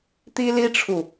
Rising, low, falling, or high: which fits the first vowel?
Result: high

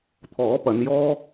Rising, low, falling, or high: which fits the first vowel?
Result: rising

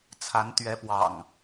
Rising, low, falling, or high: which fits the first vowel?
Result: rising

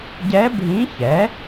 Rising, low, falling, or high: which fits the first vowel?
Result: rising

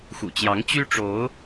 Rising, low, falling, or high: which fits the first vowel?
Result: low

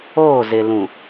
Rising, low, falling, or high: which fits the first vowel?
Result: falling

